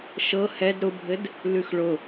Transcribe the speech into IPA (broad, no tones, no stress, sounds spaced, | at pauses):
ʃ ɤ h ɛ d ɾ ʊ bʱ ɘ d | l ʉ x ɭ ʊ